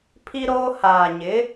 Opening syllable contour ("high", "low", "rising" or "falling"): high